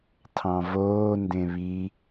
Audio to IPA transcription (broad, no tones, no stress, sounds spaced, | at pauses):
tʰ ɑ̃ v oː n d ẽ β i